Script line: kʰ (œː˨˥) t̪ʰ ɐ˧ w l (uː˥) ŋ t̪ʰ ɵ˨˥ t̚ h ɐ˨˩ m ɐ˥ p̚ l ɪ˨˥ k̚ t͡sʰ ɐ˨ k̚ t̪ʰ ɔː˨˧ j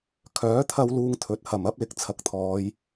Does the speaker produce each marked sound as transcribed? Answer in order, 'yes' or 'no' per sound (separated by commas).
yes, no